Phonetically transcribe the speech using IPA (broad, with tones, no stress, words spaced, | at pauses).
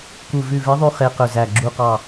ku˧˩vʉ˧˩ve˧˥ðˤy˧˥ χe˧˥qɵ˧˩zæ˧˩ ɡ͡ǁu˧˩qɑ˧˩